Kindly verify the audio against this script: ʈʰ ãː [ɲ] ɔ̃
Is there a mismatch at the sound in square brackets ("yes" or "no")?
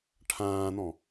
yes